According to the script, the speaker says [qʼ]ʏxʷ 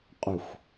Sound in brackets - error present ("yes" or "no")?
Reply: no